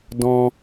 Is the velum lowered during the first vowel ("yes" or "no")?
yes